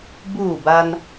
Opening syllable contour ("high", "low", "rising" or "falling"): falling